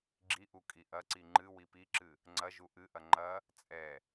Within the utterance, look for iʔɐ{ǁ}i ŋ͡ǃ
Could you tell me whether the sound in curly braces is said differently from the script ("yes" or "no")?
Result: yes